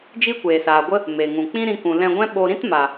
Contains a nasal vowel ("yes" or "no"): yes